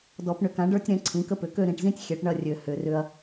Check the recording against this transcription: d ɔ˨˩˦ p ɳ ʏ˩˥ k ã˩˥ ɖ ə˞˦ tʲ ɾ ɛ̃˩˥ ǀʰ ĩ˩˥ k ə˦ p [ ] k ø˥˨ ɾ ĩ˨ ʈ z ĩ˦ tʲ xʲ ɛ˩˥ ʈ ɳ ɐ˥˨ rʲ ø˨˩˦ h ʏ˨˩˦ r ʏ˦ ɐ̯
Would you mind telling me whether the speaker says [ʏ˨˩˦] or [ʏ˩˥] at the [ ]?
ʏ˩˥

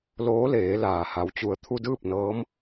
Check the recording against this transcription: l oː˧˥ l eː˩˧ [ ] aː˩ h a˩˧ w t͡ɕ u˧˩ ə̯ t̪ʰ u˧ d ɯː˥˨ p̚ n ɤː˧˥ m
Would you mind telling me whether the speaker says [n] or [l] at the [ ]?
l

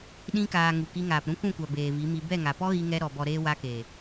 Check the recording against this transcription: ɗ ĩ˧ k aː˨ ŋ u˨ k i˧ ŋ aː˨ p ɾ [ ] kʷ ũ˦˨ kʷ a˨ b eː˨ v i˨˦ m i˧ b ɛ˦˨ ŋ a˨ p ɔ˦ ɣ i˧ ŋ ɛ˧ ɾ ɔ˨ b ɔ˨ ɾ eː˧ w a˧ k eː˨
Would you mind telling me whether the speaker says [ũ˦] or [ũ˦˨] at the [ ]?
ũ˦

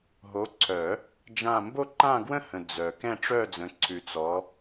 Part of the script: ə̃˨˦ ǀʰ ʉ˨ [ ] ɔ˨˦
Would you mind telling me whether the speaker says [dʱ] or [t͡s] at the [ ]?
t͡s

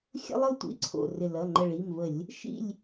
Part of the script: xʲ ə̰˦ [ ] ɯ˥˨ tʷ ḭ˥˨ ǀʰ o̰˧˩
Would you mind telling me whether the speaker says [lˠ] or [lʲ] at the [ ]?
lˠ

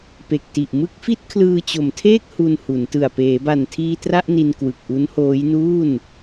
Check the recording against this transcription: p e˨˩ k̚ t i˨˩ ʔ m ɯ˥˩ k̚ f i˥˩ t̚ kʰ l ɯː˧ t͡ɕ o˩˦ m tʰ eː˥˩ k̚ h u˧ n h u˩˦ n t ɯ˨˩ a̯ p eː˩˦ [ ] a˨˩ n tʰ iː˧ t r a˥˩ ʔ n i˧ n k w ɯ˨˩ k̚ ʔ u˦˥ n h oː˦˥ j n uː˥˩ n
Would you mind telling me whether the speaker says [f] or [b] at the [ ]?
b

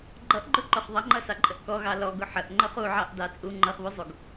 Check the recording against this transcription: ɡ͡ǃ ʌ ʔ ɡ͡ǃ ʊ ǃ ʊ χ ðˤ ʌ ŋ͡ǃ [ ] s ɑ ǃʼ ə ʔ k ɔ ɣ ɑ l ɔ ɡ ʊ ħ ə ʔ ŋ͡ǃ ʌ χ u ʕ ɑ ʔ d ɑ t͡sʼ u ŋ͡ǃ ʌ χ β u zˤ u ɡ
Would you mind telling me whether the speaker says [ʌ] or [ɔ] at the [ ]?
ʌ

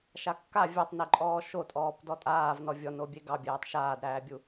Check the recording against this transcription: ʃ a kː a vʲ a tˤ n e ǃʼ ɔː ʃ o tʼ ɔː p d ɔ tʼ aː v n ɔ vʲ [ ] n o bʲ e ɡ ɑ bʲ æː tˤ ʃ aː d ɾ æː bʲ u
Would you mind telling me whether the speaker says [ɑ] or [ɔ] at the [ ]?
ɔ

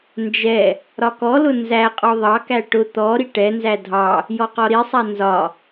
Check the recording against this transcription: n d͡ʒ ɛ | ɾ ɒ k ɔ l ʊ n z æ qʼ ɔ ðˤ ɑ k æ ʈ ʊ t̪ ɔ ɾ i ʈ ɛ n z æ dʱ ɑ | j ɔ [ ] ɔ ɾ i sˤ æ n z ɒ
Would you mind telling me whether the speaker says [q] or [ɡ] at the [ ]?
q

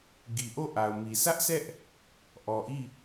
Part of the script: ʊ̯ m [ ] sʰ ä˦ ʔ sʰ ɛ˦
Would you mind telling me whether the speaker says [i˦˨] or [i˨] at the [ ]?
i˨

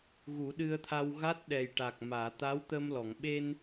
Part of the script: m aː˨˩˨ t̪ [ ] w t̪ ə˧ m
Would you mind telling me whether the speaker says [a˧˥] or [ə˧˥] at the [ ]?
a˧˥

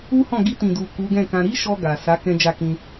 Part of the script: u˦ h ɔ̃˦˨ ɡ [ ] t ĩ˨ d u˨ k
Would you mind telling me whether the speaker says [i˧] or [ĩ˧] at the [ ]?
i˧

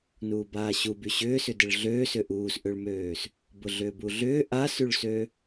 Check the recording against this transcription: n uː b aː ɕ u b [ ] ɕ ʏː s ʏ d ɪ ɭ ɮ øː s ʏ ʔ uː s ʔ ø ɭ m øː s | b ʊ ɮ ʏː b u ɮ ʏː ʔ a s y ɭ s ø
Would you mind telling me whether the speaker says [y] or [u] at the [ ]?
y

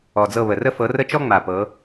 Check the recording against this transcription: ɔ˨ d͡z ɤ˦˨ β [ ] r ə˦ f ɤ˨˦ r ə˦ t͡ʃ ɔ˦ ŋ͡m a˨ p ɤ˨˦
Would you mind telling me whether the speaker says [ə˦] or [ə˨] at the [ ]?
ə˨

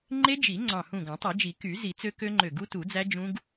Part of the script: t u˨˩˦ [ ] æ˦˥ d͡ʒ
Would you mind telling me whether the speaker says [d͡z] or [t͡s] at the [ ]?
d͡z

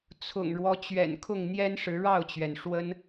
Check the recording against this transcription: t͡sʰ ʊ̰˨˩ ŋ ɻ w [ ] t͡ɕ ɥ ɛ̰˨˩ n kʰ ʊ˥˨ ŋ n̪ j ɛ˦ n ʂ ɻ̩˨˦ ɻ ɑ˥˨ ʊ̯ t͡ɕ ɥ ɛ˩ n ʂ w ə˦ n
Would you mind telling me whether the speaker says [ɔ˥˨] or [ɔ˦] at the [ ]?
ɔ˦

